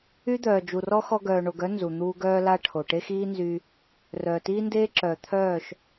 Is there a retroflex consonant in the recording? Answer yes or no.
yes